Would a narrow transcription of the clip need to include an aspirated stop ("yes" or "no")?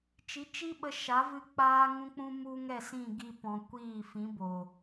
no